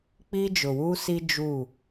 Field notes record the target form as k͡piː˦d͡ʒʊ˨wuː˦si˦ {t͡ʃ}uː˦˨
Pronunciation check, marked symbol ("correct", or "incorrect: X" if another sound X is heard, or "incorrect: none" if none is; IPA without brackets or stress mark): incorrect: d͡ʒ